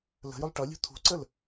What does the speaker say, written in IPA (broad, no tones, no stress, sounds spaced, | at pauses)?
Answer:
l ə̤ j ʊ lˠ ʈ ʌ lʲ ṳ t̪ʰ ṳ ǀ ə l